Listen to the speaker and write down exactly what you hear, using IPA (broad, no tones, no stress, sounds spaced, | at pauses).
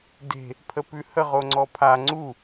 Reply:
d e̤ | pʰ ə p ʉ h ə ʁ o ŋ͡ǀ ɔ pʰ a ŋ͡ǀ u